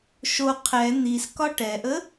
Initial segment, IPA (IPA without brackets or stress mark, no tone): ʃ